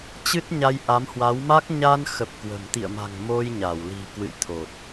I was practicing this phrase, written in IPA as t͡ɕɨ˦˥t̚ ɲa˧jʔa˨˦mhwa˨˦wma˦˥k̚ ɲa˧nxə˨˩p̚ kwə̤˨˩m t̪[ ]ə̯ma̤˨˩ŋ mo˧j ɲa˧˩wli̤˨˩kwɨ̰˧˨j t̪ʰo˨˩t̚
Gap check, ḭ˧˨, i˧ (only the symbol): ḭ˧˨